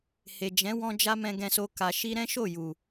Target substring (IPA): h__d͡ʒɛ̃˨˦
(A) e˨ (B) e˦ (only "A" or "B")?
A